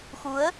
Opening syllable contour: rising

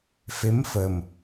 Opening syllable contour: rising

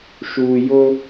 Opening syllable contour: low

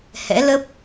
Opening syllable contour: rising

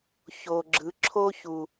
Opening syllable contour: low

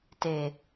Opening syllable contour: low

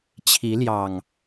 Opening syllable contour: rising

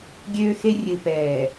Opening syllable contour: high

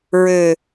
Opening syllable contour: low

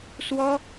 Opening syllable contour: high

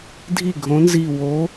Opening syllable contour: falling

